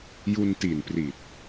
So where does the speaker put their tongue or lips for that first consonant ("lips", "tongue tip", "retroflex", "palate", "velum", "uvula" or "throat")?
palate